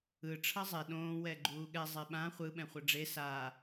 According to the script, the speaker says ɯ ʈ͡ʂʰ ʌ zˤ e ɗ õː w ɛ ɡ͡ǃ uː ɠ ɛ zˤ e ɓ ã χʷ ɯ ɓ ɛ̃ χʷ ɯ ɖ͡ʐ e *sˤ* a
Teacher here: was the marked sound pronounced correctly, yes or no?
no